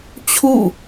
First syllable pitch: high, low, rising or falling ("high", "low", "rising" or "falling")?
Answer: falling